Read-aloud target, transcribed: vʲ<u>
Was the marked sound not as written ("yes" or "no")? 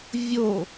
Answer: yes